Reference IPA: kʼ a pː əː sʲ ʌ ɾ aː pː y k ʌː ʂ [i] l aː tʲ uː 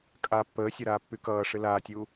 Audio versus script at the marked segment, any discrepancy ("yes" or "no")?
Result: yes